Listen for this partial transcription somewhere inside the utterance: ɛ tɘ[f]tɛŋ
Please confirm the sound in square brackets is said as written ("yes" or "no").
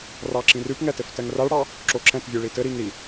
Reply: yes